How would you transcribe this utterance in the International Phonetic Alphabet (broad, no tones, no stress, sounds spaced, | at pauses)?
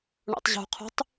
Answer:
ɳ o̰ tˤ ʑ ṳ qʰ ṳ tˤ